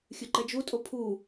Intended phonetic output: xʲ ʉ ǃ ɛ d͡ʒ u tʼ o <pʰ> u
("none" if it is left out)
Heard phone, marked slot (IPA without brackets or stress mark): pʰ